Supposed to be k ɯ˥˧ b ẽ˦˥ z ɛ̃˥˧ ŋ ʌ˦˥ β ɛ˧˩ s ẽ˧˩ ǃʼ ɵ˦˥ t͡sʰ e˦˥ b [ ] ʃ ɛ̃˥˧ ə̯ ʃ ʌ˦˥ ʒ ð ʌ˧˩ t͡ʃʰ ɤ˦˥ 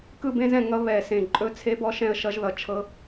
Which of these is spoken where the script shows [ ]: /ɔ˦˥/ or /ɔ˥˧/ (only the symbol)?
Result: ɔ˦˥